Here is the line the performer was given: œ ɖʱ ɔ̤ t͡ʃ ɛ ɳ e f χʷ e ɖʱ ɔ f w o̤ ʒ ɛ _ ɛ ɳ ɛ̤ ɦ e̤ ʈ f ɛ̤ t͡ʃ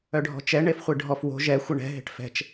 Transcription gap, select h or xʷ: xʷ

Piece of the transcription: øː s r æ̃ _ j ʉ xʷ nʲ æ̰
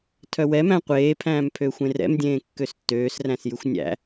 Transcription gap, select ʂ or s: s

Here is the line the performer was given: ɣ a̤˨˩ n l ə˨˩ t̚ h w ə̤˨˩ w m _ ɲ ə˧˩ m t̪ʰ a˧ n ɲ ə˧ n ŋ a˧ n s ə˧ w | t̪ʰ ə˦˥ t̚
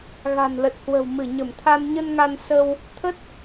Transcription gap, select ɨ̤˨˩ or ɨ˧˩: ɨ˧˩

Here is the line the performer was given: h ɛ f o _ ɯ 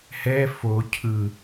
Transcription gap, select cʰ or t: cʰ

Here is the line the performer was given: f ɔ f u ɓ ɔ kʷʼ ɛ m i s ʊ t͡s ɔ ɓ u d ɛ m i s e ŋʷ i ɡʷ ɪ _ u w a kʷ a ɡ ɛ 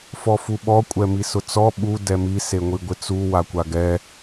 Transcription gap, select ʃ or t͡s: t͡s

